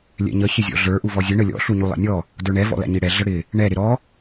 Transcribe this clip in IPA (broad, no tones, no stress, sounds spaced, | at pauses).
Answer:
lʲ ɛ̰ ɲ ə ç ɪ zʲ ɔ̰ ɮ ə˞ ʔ u v ɔ zʲ ə ɳ ə lʲ ɔ̰ ɬ u ɲ u lˠ ɛ̰ nʲ ɔ | d ə˞ ɳ ɛ v ɔ̰ l æ̰ ɲ i ɽ ɛ ɮ ə ɽ ɪ | ɳ ɛ ɾ ɪ ɾ ɔ